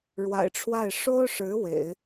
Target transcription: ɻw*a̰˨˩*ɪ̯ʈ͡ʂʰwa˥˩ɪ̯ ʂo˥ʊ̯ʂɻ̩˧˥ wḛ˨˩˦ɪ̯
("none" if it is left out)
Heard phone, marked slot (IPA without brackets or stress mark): a̰˨˩